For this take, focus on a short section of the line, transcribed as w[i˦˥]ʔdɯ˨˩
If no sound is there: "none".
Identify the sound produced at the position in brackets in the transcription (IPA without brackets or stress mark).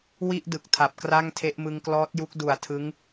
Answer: i˥˩